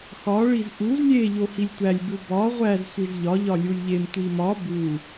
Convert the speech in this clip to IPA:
xɒ ɭizʔuz lʲe ʎohilʲtʷælʲ bubɒ ʁʷæz sʷizʎɒ ʎɒlʲulʲʎem tʷimɒ bu

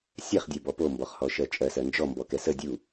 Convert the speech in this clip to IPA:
sʲɛχdʲɜbɔ pombɔχhɔʃɜ t͡ʃʼɜsɜ nd͡ʒɔmbɔkɛ sə dʲu

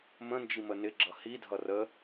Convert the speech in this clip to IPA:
mə̃nd͡ʒi mənɪɡ͡ǁʌ hidʱʌ rə

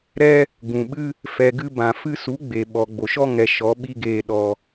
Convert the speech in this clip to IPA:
ɾɛ˧ | ɡũ˨ɓɨ˦ | fɛ˨ɡɨ˧ bã˨ fɨ˧su˨˦ ɡ͡be˨ɓɔ˨ ɡ͡bo˨ʃɔ˦ ŋɛ˨ ʃɔ˨˦ɓi˦ɡeː˧ ɗɔ˧

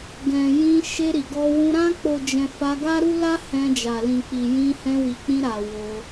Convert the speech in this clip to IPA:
ɡɛ̃˨ jĩ˧ ʃe˧ɾi˨ɡɔ˧wũ˧ ɾã˧k͡po˨d͡ʒɛ̃˨ fa˧ ɡa˦ɾu˦ la˦ hɛ̃˧d͡ʒa˨ lĩ˨k͡pi˨jĩ˧ hɛ̃˧wi˨k͡pĩ˧ɾa˨ wo˧

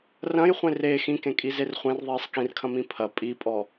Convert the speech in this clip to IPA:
rɐ̃jχʷẽ re xĩkẽkʼizer χʷẽrðˤiːsˤ kĩrkʰɐ̃mĩ pʰɐ pʼipʼɔ

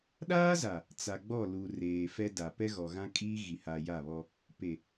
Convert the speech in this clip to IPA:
ɗaː˦za˨ | t͡sa˨ɡ͡bɔ˦˨ lu˨ reː˨fɛ˦da˨ pɛ˦ɣɔ˨ɣã˦ kʼiː˦ɣi˨ha˨ ja˦˨βɔ˦ | pe˨

